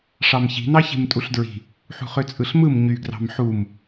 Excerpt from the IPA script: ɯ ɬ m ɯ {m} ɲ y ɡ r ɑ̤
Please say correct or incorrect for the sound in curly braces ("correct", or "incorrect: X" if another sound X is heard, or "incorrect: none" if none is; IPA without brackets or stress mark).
correct